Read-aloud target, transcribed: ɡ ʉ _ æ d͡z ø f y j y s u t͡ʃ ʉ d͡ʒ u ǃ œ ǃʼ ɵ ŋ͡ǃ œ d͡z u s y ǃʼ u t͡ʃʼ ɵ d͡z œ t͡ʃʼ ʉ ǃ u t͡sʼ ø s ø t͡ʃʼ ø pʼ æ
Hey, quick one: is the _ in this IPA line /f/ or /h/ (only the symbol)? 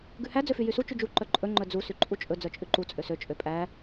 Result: h